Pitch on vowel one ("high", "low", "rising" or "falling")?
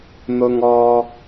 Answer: low